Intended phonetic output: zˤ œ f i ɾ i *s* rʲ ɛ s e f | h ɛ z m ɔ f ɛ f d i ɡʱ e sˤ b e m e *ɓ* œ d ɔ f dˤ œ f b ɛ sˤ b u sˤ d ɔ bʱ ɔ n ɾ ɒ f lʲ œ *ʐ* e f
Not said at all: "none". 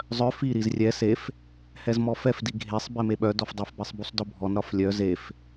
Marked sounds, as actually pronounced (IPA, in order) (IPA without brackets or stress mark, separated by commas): z, ɓ, z